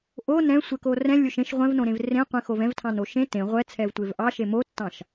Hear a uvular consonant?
yes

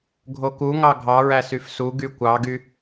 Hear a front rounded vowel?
yes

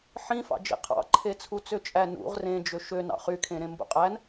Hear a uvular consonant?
yes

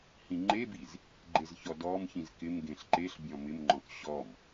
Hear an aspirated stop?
no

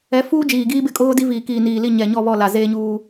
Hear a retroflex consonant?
no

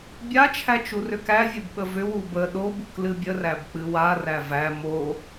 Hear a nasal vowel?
no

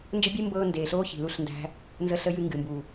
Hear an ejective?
no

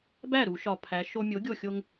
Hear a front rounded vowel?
no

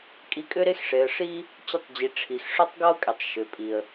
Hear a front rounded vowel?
yes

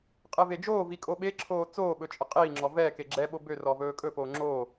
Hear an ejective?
yes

